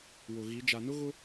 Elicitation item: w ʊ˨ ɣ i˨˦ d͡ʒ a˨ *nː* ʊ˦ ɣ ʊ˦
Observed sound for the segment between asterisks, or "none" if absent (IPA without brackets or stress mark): n